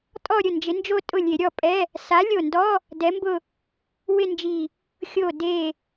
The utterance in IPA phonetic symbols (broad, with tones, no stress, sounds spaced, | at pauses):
tʼ ɔ˥˧ ɾʲ ʊ˥˩ n d͡ʒ ɪ˨˥ n d͡ʒ o˥˧ tʼ ʊ˥˩ lʲ e˧˩˧ ɾʲ ɔ˥˩ pʼ ɛ˧˥˧ | s a˨˥ lʲ o˧˩ n d ɔ˧˥˧ | d ɛ˨˥ m b ʊ˥˧ | w ɪ˥˧ n d͡ʒ i˧˩ | xʲ o˧˩ d e˧˩